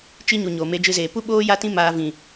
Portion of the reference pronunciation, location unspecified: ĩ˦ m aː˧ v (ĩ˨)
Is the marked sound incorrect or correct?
correct